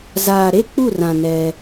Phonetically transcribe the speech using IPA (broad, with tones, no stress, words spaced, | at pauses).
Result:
zaː˨ɾe˦˨ k͡pu˦˨rã˨ nɛ˦